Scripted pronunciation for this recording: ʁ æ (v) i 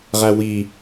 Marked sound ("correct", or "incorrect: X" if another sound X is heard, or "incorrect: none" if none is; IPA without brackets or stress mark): incorrect: w